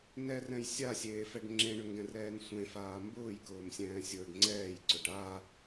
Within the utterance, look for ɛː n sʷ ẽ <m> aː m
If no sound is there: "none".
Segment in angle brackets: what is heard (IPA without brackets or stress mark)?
f